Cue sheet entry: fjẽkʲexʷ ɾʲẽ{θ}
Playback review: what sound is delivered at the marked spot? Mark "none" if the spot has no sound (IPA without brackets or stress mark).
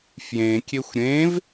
v